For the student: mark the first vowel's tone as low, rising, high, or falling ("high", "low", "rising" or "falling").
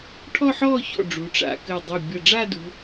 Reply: falling